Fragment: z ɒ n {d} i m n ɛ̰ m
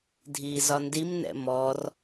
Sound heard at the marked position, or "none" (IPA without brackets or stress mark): d